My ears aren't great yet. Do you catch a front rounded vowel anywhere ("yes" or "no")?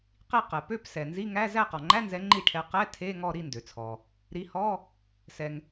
yes